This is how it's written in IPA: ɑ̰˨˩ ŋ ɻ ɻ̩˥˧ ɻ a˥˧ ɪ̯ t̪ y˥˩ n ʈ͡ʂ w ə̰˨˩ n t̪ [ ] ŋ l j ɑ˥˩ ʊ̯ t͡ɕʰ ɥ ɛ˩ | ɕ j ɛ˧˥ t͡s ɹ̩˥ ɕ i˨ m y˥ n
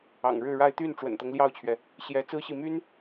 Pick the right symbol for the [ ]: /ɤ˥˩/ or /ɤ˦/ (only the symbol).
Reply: ɤ˦